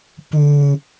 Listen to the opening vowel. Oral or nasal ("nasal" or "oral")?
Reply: oral